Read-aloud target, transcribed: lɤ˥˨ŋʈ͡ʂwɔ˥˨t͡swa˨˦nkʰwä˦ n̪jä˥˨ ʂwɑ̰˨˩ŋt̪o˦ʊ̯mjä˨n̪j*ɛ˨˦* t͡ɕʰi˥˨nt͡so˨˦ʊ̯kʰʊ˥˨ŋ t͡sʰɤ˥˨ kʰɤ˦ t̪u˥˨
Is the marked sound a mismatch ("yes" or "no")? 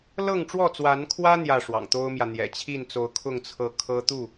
yes